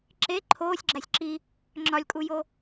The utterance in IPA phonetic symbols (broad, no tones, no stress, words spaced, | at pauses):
ǁe ǃʰoːsʲɡ͡ǁæsʲ ǁi | ŋ͡ǁɒlʲkʼujo